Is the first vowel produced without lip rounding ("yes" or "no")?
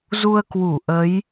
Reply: no